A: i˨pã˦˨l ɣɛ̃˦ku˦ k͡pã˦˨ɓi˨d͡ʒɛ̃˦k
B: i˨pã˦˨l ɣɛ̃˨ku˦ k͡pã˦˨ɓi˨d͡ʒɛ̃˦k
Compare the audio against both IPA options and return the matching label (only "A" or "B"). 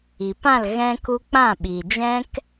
A